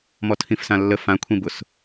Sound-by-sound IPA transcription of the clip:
m ɔ tʰ ĩ f s ã lː ə f ã kʷʰ ĩ b ʊ s

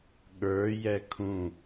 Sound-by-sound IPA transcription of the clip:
ɠ ə˞ j ɛ kʰ ũ

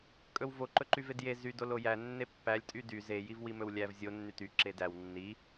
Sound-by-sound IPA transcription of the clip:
kʼ ɵ w v o ǃ ɵ ǃ y v e d j e z y d o l o j æ nː e pː æ lʲ tʼ y d y z e j i v w i m ɵ w lʲ æ v zʲ o nː y t y ǁ e d æ w nː i

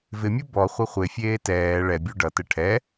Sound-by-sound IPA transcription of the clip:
v ɪ mʲ u b ɔ χʷ ɘ χʷ e fʲ eː t ɛː ɭ ɛ bʲ u ɖ ʌ t ɘ ʈʰ ɛ

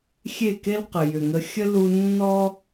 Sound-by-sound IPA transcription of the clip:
xʲ e˦˨ k e˦ l q ə˨ j ʏ˨ ŋ ə˧ xʲ ə˦ l u˧ nː ɔ˦

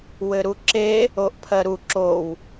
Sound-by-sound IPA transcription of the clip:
w ɘ ɾ u ǁ e | o ʔ pʰ ɜ ɾ u ǁ o w

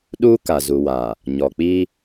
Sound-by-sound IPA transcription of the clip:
ɗ uː˦ k a˨ z u˨ w a˨ | ɲ ɔ˨ k͡p i˦

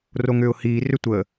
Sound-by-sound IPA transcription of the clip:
r o ŋ ʏː ʊ̯ h iː r ʏ tʷ ə

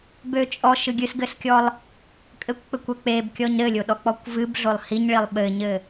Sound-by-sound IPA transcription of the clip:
b ø t͡ʃʼ ɔ ʃ ɨ ɡʲ ɨ s ɡ ɘ s kʲ ɔ lˠ | kʼ ɘ kʷ k͡p ɘ kʷ ɛ k͡p e b kʲ ɔ ɲ ɾ ɘ lʲ o ɗ ɔ k͡p ɔ kʷ v ɨ b ɮ o lˠ h i ɲ ɭ i lˠ ɓ ɘ ɲ ɘ

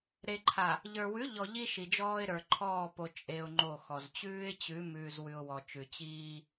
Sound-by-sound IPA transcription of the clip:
ɾ e˨ ǃʰ a˨ | ʎ ə˞˨ w ʉ˨˦ ʎ ɔ˨ ʎ i˦ ʃ i˨ d͡ʒ ɔː˦ ɪ̯ ɾ ə˞˨ ǃʰ ɔː˦˨ p o˨ t͡ʃʼ e˦ ʊ̯ ŋ͡ǃ o˦˨ x ɔ˨ z t͡ɕ ʉː˦ ɪ̯ t͡ɕ ʉ˨˦ m ʉː˨ z w ʉ˨ ʊ̯ w ɔ˨ t͡ʃ ʉ˨ t͡ɕ iː˦

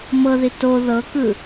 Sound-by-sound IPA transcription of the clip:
m ɤ ð i t o ð ɤ k ɯ

